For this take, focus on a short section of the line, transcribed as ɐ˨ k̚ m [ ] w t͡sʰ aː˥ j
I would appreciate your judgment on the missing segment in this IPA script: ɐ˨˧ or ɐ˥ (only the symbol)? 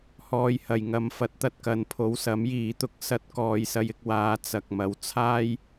ɐ˨˧